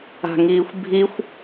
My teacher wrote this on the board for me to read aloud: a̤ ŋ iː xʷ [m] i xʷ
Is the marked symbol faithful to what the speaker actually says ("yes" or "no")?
no